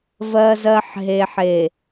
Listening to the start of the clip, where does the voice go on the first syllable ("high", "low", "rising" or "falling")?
low